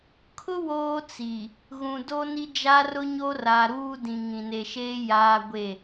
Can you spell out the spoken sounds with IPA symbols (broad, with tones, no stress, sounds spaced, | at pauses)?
kʰ ʊ˦ w oː˦ t͡s i˨ | ɣ ũ˨ d o˦ n i˦ d͡ʒ a˦ r ʊ˦ ɲ o˦ r a˨ ɾ uː˦ d ĩ˨ ŋ ĩ˨ n e˨ ʃ eː˦ j aː˦ ɡʷ e˦˨